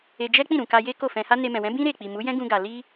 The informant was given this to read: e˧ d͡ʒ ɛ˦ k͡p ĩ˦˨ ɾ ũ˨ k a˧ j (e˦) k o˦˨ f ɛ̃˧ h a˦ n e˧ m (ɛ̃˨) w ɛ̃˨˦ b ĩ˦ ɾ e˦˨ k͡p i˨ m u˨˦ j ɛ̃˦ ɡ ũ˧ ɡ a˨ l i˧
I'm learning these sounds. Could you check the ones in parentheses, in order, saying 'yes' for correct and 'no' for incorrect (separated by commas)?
yes, yes